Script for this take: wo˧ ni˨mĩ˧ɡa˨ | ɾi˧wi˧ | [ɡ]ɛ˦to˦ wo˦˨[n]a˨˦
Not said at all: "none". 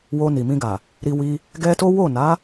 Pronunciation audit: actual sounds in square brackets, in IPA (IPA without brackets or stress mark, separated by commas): ɡ, n